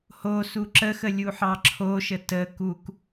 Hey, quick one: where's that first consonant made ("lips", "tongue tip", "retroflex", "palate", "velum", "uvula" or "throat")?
throat